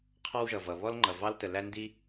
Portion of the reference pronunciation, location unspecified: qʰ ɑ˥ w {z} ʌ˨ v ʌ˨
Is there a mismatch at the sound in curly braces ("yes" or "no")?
yes